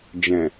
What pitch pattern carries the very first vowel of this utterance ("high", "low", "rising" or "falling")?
low